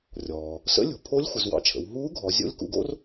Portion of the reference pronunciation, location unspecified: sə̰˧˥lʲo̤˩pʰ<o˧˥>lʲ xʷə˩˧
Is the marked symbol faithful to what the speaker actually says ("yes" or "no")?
yes